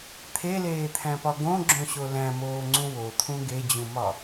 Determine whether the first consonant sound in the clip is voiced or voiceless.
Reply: voiceless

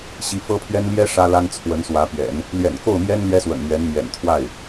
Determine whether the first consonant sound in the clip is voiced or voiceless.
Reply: voiceless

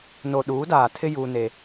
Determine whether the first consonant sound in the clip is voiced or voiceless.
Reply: voiced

